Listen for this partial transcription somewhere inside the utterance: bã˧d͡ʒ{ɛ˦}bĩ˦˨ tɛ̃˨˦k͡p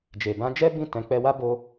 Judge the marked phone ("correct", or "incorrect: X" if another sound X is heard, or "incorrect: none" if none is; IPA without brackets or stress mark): correct